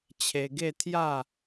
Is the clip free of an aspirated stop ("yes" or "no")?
no